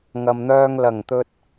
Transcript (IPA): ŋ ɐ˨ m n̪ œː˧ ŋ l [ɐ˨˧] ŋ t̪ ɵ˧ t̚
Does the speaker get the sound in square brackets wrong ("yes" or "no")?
yes